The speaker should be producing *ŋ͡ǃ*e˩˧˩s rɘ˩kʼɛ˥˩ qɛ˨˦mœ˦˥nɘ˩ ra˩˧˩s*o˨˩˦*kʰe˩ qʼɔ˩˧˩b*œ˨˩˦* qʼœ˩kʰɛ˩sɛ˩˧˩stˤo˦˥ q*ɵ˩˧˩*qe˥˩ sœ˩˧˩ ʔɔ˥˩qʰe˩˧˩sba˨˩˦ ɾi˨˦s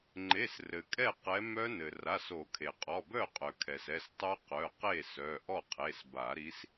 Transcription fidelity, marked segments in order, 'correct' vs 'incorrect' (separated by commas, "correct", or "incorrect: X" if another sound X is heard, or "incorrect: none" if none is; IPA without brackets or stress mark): correct, correct, incorrect: œ˥˩, incorrect: œ˩˧˩